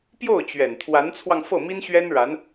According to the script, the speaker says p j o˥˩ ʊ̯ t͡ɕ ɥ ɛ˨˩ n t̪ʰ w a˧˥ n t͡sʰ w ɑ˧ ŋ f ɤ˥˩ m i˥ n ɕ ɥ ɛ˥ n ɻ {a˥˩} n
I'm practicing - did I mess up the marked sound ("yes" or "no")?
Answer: yes